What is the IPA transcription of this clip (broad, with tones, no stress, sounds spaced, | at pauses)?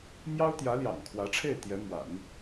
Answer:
m j ɑ˥ ʊ̯ t̪ j ä˧˥ l j ɑ̰˨˩ ŋ kʰ w ä˧˥ ʈ͡ʂʰ e˥˩ ɪ̯ t̪ j ɛ˧˥ m w a̰˨˩˦ n